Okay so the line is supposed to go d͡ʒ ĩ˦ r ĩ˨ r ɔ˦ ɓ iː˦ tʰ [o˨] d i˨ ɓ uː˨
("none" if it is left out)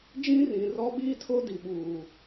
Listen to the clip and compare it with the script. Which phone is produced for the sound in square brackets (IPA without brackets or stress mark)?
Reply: o˦